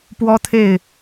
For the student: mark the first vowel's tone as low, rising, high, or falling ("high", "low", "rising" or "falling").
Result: high